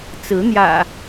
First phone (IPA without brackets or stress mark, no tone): t͡s